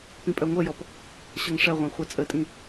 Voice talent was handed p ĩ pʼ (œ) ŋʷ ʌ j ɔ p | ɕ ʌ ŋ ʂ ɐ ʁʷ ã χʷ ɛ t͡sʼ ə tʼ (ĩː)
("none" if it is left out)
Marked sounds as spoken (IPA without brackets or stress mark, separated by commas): œ, ĩ